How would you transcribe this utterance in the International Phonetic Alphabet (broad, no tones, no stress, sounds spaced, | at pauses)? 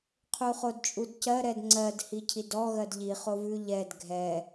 qʰ u χ o d t͡ʃʼ u d c ɜ ɾ ɛ d ŋ͡ǀ ɜ d h i cʰ i d ɔ ɣ ɜ d ʎ i χ o v ʉ ʎ ɛ d ɡʱ ɛ